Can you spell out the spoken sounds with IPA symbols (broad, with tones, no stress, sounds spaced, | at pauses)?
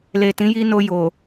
l e˨ t ĩ˨˦ j i˧ n o˧ j o˨